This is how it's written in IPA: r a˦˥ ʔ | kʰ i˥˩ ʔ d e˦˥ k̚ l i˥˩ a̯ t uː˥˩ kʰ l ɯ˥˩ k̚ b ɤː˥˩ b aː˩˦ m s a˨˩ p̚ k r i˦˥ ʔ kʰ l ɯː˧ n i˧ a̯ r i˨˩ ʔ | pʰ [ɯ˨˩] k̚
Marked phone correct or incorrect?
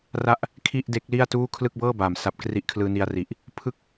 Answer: incorrect